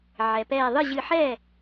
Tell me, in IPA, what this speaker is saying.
ʕ ɛ˩ p ɛː˧˩ ðˤ ɨ˥˩ ʑ ɨ˧˩ ħ ɛ˥˩

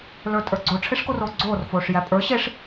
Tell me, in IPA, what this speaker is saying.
l ə˞ tʼ ə˞ ɡ͡ǀ o ʈ͡ʂʰ e ʂ k o r oː ɡ͡ǀ oː r f oː ʂ j æ pʼ ə˞ ɕ e ʂ

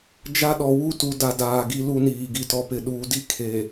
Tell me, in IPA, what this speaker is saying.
d͡ʒ a˦ ɗ ɔ˨ w u˦ t u˨ d a˨ d aː˨ ɡ i˦ l u˦ n iː˨ ɡ i˨ t ɔ˨ p ɪ˨ ɗ uː˨ d i˦ kʰ e˨

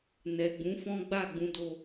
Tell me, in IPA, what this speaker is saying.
n ɛ˨ ɡ͡b ũ˨˦ f ɔ̃˦ ɡ͡b a˦˨ ɡ͡b ũ˨˦ d o˧

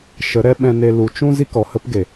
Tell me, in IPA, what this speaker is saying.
ʃ ə˨˦ ɾ ɛ˦ ɓ ɛ̃˧ n e˧ l u˨ t͡ʃ ũ˦ z i˦ k ɔ˨ h ə˦ p ɡ e˨

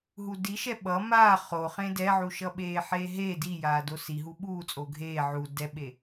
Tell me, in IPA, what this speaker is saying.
ɦ u d i ʃ ɛ ɓ ʌ m aː χ o χ ẽ d ɛ ʕ u ʃ ʌ ɓ eː ħ eː ɦ e d i j aː d o s i ɦ u ɓ uː t͡sʼ o ɡʱ eː ʕ u d ɛ ɓ e

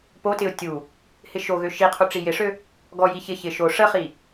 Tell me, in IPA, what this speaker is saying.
p o t ɪ ʊ̯ tʲ u | h ɪ ʃ o ɣ ø ʃ i qʰ u ʈ͡ʂ i j ɪ ʂ ø | ɡ ɔ j i ç ɪ ç ɪ ʃ o ʂ ə χ i

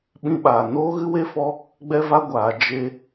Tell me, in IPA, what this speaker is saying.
ɓ ĩ˧ ɓ aː˨ n oː˦ ɣ ɨ˦ w e˦ f ɔ˦ | ɡ͡b ɛ˦ v a˦ ɡʷ aː˨˦ d͡ʒ e˦

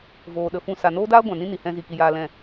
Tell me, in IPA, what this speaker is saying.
v oː˨ ɗ ə˨ f ũ˦˨ s a˨ n oː˦ d aː˦ ɡʷ ã˨ n ĩ˦ n i˨ h ɛ̃˧ z i˨ k i˧ j aː˧ l ɛ̃˦˨

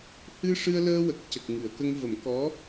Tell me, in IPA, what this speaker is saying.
h ɨ˧ ʂ ɨ˧ ə̯ l əː˧ w ə˨˩ k̚ c ə˨˩ k̚ ŋ ɨ˨˩˨ ə̯ k ə˧ ŋ v ə˨˩˦ m k ɔ˧˥

